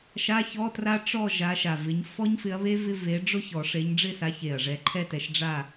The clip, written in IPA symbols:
ʃ a˧˥˧ ç ɔ˧˥˧ t r a˦˥ ʈ͡ʂ ɔ˥˨ ʒ a˨˦ ʃ a˨˩ v ɪ˨˦ ɲ f ɔ˦˥ ɲ f ɪ˨˦ ɐ̯ β e˦˥ v ɪ˧˥˧ v e˨˦ ɖ͡ʐ ʊ˥˨ ç ɔ˨˩˦ ʂ e˨˦ ɲ ɖ͡ʐ ɪ˥˨ s a˨˦ ç e˨˩ ɐ̯ ʐ ɛ˨˦ ǃʰ ɛ˥˨ t ɛ˨˦ ʃ ɖ͡ʐ a˥˨

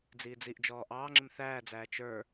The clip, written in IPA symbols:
d͡z iː d͡z i ʔ d͡ʒ ɔː ʔ ɑː ŋ͡ǁ ɪ m θ æː d͡z æː t͡ʃ ə˞

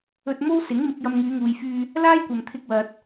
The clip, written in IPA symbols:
ɵ˧ t̚ m o˥ w s ɪ˨˥ ŋ m ɪ˧ k̚ j ɐ˧ m ŋ yː˨˧ ŋ uː˨ j f yː˧ | l aː˥ j kʷ ɐ˨ m t̪ʰ ɪ˧ k̚ w ɐ˨ t̚

